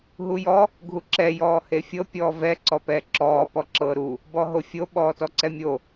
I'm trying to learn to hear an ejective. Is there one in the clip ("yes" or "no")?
no